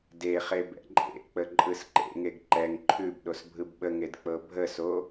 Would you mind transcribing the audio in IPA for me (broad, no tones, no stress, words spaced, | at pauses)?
deχe bɛ̰ǃʼḛk͡pə ǃʼɯsǃḛŋeɡ ǃɛŋ ǃʰʉb ɗosbʱɯbɓəŋed k͡pɤbʱəso